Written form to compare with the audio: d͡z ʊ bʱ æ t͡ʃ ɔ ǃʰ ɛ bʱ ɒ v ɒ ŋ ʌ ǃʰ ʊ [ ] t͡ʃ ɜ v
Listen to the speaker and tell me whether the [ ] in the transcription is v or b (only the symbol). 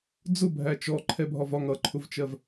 v